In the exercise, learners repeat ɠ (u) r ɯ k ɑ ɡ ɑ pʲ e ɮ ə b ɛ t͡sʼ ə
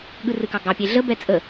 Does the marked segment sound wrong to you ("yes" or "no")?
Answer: yes